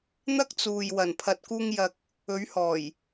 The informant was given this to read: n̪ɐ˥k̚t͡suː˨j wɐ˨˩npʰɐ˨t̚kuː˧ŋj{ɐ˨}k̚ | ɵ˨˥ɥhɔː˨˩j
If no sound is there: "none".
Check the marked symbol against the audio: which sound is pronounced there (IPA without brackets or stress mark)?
ɐ˨